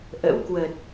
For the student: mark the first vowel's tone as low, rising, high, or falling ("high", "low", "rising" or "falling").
rising